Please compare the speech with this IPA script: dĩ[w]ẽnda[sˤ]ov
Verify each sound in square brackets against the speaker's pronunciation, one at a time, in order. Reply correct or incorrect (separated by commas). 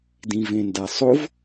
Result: incorrect, correct